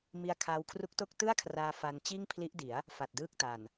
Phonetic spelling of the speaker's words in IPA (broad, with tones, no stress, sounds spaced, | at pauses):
m i˧ a̯ kʰ aː˧ w kʰ r u˦˥ k̚ t o˥˩ k̚ t ɯ˥˩ a̯ kʰ r aː˧ f a˧ n t͡ɕ iː˥˩ ŋ pʰ l i˦˥ ʔ d i˩˦ a̯ | f a˨˩ t̚ d ɯː˥˩ k̚ t a˨˩ n